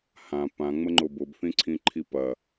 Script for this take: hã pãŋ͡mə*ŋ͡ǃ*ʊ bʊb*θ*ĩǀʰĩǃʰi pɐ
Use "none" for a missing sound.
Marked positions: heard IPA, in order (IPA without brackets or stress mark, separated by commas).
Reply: ŋ͡ǃ, θ